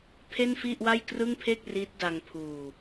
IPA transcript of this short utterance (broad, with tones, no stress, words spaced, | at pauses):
pʰe˥˩nfi˥˩ʔwa˥˩j krɯ˥˩ŋpʰe˥˩k̚ riː˦˥t̚ da˧ŋpʰuː˧